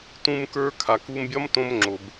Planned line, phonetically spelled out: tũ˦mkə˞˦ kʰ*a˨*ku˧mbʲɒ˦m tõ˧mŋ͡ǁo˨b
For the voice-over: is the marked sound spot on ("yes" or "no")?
yes